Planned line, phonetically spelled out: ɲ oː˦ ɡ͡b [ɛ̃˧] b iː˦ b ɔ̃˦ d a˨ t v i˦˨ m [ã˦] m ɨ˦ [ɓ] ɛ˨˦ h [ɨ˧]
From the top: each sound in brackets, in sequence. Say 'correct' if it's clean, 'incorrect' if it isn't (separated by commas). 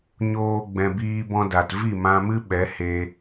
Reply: correct, incorrect, correct, incorrect